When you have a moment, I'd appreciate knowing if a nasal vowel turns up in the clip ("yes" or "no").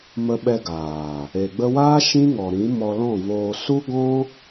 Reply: yes